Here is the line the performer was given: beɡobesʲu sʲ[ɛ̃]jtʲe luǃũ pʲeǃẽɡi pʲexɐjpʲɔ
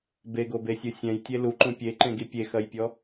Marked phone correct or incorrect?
correct